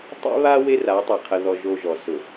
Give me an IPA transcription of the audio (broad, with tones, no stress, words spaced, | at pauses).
tˤḭ˦βa˦ we˦ra˨˦tˤe˨ qʰə˨ðɔ˨ ʒo˦ʒɔ˨ sʊ˨